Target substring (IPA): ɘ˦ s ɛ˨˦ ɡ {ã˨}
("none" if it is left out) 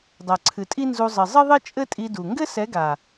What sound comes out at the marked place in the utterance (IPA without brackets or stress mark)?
a˨